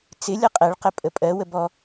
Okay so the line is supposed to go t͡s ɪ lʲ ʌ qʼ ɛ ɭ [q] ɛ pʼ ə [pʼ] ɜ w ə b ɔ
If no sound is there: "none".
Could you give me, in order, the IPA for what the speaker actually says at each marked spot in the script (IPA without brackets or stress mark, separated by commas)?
q, pʼ